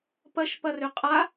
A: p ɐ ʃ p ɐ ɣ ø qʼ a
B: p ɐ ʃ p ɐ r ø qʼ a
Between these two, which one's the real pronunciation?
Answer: B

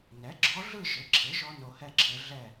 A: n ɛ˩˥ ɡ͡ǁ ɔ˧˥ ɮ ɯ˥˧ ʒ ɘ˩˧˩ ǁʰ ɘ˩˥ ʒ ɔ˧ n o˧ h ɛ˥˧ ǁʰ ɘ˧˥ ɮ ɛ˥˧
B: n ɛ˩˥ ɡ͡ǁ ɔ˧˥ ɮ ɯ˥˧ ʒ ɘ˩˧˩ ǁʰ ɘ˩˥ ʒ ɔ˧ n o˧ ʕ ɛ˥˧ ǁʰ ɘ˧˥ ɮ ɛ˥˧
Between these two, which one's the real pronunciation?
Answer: A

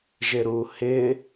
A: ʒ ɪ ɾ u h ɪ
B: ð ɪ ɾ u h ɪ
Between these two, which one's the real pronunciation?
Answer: A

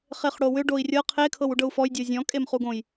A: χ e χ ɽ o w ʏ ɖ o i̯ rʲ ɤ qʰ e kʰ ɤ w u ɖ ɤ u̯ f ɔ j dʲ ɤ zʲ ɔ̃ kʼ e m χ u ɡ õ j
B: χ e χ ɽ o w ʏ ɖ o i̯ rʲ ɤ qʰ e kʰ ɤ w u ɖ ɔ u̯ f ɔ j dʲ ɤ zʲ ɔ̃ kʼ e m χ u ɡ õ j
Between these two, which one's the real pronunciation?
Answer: A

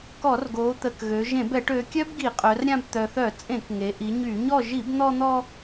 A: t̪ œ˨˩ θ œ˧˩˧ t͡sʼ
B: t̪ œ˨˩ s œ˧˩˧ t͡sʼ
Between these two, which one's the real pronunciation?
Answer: A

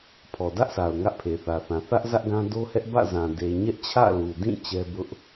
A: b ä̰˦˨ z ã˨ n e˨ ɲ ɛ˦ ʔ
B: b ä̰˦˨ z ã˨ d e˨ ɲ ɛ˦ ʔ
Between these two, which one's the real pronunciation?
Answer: B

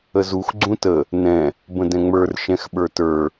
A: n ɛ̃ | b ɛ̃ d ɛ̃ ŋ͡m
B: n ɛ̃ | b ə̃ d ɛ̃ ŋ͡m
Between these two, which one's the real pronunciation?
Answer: B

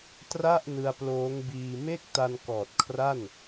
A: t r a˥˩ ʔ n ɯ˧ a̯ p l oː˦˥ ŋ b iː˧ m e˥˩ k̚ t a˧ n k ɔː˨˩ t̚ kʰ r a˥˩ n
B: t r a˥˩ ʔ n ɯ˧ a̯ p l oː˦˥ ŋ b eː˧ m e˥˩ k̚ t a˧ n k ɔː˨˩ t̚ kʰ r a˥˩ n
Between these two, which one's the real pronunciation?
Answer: A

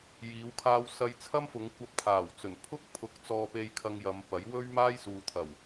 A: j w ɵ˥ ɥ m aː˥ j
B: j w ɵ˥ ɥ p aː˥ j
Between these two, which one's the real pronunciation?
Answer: A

